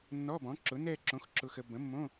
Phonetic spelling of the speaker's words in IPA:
nː ɔ˧˥˧ b ɔ̃˩˥ ǁ ʊ˩˥ n ɛ˥˧ ǁ õ˩˥ x ǁ ʊ˨ x ə˨ b ə̃˩˥ mː õ˧˥˧

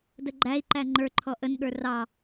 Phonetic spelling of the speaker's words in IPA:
d ə ɡ͡ǃ æ i̯ ǃ æ ŋ͡ǃ ə˞ ǃʰ ɔ ʔ ə n ɠ ə˞ r ɑ

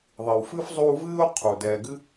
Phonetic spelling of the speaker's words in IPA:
ðˤ i˩ w f ɨ˦ f zˤ u˦ v ɨː˥ ʊ̯ qʰ u˩ d ɛː˨ ɡ ɨ˥

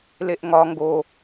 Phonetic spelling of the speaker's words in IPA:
l e ʔ ŋ ɒ ŋ ɡ o

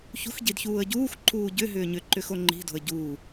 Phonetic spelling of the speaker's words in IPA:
ç ṳ x ɟ i d ç uː ə̯ ɟ uː x ǃʰ uː ɟ ʏ ɦ ʏː ɲ ʏ ǃ ʏ x o ŋ͡ǃ i̤ d o̤ ə̯ ɟ uː

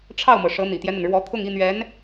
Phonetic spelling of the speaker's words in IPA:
ʈ͡ʂʰ ɑ˥˩ ʊ̯ m ɤ˩ ʂ ɤ˧˥ n̪ ḭ˨˩ t̪ j ɛ˦ n̪ ə˩ n ɻ w ɔ˧˥ t̪ʰ ʊ˥˧ ŋ i˥˩ n̪ ɥ ɛ˧˥ n

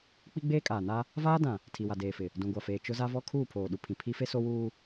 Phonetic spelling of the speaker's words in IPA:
k͡p i˦ ɡ͡b eː˦ kʼ aː˨ n a˦ | v aː˦ d ã˨ | tʰ i˨ w a˨ d eː˨ f ɪ˨ | d ũ˨ ɡʷ a˨ f eː˨ t͡ʃ ʊ˦ z a˦ v ɔ˦ kʰ uː˦˨ pʰ oː˨ ɗ u˨ pʰ ĩ˨ pʰ i˦ f e˦ s o˦ w uː˦

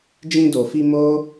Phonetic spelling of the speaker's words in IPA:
d͡ʒ ĩ˧ d o˨ f i˧ m o˦

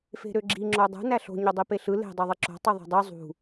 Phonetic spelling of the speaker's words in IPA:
f e̤ ɾ ø ɡ͡ǁ i ŋ͡ǁ o dˤ ṳ n æ ɬ o̤ ɲ ø dˤ i p e ɬ ɯ l e̤ dˤ o ðˤ i ǁ o̤ tˤ ɯ ðˤ o̤ dˤ ø zˤ ṳ

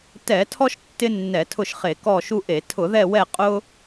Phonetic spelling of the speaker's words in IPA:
t ɛ˧˩˧ tʰ ɔ˦ ʃ tː ɪ˦ nː ɛ˧˩˧ tʰ ʊ˦˨ ʃ χ e˧˩˧ k ɔ˦˨ ʃ u˦ ʔ e˧˩˧ tʰ ʊ˧˩˧ ð ɛ˦˨ w ɛ˦˨ qʼ ʊ˦

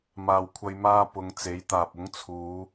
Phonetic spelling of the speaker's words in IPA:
m aː˨ w kʷʰ ɐ˧ j m aː˧ p ʊ˨˧ ŋ t͡s e˨˥ j t̪ aː˨ p̚ ʊ˨˥ ŋ t͡sʰ uː˨˧

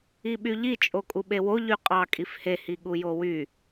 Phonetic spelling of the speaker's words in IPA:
i ɓ y ʎ i t͡ʃʼ o kʼ u ɓ e w o ʎ y qʼ ɑ kʼ i f h e h i ɠ u j o w y

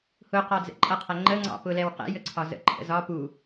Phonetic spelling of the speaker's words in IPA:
h ʊ q ɒ d͡z ɛ̰ ǃʼ ʌ qʰ æ ŋ͡ǃ ə ŋ͡ǀ ɑ̰ p ʊ l ɛ w q ɛ̰ j ə ǀʰ ɒ z ə̰ ǃʰ ə̰ z ɒ p u

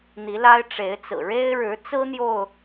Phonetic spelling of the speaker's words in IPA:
n̪ i˨˦ l a˦ ɪ̯ ʈ͡ʂ e˨˦ ɪ̯ t͡s ɹ̩˨˩ ɻ e˦ ɪ̯ ɻ ɻ̩˨˦ t͡s ɹ̩˦ n̪ j o˥˨ ʊ̯

